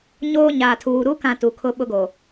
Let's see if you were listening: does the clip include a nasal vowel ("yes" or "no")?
yes